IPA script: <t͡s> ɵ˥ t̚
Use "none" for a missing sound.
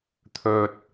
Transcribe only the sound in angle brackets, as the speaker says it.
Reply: t̪ʰ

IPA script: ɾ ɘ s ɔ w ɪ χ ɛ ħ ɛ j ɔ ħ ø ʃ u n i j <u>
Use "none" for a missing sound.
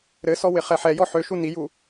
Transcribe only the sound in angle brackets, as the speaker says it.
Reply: u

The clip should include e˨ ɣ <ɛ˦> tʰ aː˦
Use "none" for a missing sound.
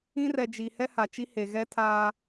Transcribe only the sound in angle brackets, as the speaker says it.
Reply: ɛ˦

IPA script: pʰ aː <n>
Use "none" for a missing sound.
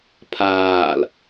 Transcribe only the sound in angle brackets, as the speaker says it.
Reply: l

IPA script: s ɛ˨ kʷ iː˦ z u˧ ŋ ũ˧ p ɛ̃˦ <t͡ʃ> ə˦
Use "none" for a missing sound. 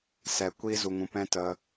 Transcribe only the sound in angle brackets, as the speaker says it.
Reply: t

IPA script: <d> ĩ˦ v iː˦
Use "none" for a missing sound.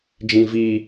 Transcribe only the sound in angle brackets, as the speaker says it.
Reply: d͡ʒ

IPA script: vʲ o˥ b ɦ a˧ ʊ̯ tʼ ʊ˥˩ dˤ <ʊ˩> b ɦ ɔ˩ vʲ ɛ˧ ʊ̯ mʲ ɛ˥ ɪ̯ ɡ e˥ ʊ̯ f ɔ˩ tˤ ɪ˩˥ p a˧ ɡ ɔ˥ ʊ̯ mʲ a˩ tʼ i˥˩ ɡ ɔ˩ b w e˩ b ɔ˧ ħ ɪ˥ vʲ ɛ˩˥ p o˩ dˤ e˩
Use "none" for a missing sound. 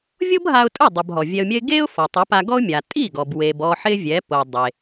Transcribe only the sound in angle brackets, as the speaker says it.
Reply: ʊ˩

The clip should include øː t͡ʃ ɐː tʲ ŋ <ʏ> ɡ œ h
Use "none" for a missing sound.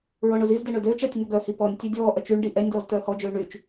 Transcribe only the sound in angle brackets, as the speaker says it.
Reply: ʏ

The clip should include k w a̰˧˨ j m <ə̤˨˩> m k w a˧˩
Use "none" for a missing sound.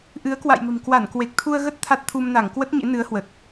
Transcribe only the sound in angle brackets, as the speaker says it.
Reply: ə̤˨˩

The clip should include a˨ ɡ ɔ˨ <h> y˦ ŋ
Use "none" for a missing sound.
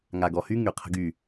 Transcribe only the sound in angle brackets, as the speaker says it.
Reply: h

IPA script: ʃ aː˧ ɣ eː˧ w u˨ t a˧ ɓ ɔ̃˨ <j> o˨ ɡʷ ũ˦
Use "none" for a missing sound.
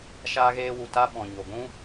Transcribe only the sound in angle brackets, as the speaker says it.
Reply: ɲ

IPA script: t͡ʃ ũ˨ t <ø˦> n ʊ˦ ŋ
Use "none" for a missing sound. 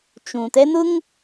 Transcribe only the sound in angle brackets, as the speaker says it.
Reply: ɛ˦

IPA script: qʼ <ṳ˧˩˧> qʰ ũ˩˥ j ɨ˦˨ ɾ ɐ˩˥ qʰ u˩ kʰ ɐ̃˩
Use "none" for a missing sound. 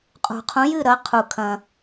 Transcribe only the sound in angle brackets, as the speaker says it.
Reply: ṳ˩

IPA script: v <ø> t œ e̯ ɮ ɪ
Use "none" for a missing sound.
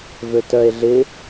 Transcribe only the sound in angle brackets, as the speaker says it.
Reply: ø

